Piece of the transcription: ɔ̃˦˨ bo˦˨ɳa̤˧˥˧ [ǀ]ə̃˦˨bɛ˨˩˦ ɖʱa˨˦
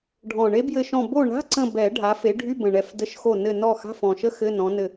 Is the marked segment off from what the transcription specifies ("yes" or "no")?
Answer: no